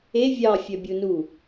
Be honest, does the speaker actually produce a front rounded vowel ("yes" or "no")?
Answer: yes